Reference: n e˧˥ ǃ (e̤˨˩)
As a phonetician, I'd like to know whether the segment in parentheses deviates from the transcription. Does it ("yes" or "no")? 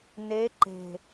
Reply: no